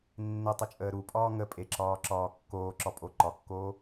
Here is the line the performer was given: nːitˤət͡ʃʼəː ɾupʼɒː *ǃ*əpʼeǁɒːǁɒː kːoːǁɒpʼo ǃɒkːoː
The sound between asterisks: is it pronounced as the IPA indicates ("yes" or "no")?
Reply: no